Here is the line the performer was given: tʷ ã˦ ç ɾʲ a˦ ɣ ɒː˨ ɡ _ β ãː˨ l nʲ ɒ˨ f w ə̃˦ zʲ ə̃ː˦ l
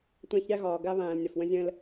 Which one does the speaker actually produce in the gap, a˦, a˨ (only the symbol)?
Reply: a˦